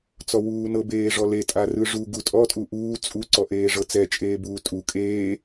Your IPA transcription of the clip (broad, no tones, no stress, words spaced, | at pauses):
t͡sɔwuːnɤ beːʐɔle tʼarɯʐu ɡutʼɔ tʼuʔuː t͡sʼu ǀɔʔeːʐɤt͡sɛ t͡ʃʼeːbuːtʼu kʼeː